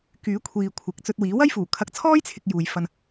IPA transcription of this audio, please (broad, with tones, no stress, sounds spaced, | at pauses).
k yː˨˥ kʷʰ iː˨ kʷʰ ɪ˨ k̚ t͡s ɵ˧ t̚ w iː˨˥ w ɐ˥ j f uː˨˩ kʰ ɐ˨˥ k̚ t͡sʰ ɔː˥ j t͡sʰ ɪ˨ k̚ j uː˨ j f ɐ˧ n